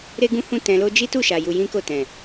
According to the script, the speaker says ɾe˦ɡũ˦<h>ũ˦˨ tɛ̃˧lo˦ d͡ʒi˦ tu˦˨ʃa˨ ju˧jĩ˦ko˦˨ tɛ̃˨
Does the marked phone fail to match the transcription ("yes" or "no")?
no